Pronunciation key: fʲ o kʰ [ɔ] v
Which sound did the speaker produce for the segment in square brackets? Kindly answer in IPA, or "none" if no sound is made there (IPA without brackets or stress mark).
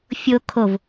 o